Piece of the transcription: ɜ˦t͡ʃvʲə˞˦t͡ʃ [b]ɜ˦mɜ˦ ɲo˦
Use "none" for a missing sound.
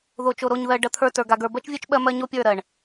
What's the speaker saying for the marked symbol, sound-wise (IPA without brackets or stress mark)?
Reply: ɓ